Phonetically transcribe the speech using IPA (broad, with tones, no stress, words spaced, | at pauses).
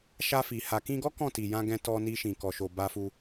ʃa˧fi˨ ha˨kĩ˧ɡɔ˦ kɔ̃˦˨ti˨jã˧ ɡɛ̃˧tɔ˧ni˧ʃĩ˨ kɔ˨ʃo˨ ba˧fu˧